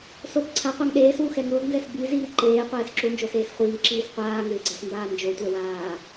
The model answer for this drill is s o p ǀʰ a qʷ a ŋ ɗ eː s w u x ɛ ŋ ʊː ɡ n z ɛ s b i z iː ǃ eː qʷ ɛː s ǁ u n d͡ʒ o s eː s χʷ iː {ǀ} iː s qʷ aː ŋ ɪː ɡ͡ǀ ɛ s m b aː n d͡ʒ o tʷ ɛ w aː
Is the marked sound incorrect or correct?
incorrect